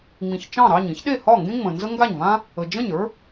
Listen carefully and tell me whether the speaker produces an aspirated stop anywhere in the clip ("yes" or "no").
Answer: no